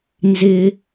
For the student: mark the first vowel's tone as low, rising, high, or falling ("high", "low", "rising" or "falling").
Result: high